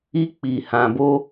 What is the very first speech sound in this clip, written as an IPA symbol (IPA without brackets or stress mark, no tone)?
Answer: i